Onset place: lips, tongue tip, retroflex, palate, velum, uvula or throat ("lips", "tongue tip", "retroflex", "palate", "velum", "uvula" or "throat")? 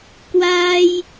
velum